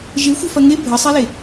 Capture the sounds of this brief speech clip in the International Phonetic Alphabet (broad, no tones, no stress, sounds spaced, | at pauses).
ʒ e xʷ ɘ f ɐ ŋ e bʱ ɘ sˤ e l e